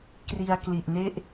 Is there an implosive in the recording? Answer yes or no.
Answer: no